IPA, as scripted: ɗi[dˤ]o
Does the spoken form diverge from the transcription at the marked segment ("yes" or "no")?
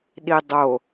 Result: no